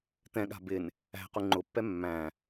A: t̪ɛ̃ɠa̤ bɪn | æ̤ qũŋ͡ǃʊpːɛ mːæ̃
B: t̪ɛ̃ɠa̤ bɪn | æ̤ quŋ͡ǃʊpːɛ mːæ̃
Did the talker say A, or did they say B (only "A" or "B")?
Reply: B